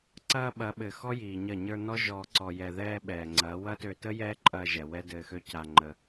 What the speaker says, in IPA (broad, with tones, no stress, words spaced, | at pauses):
ǀɐː˧ ɓɐ˨˦ ɓɘ˨ xɔ˦jiː˨ɲɐ˦˨ ɲə˞˧ nɔ˦ ʒɔː˧ǀɔ˧ jɛ˨ðɛː˧ ɓɛː˨ŋ͡ǀɐ˨˦ wɐ˦tø˧tə˦ jɛː˦ǃʼɐː˧ʒɛ˨ wɛ˦dɘː˧xø˦ ca˧ŋ͡ǃə˧